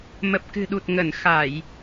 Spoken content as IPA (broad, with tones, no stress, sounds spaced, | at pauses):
m ə˨˩ p̚ k ɨ̤˨˩ ɗ u˨˩ t̚ ŋ ə˧˩ n x a˧˩˨ j